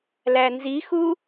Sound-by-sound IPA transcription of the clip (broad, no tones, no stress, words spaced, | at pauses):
lænzixu